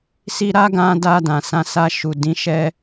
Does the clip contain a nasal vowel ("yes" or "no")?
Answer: yes